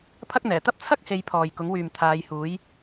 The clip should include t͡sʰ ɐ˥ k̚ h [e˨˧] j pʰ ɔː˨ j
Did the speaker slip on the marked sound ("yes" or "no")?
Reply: no